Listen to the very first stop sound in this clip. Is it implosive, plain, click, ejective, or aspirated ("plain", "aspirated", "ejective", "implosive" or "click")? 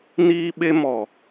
implosive